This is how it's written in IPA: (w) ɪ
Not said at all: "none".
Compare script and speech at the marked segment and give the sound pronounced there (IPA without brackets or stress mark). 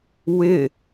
w